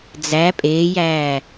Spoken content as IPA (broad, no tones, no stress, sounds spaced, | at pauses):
d͡z æ pʼ eː j æː